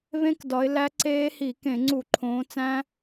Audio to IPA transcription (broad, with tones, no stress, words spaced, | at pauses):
βẽ˦˥kdɒ˨˦ɪ̯ læ˦˥ ǀeː˦˥hi˧˩˧ kẽ˧˩˧ŋ͡ǀu˧˩˧ ǃʰõː˨˦t͡sæ̃˦˥